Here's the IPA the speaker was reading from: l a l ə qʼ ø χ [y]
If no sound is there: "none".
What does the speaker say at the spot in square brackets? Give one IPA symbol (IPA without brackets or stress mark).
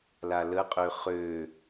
ø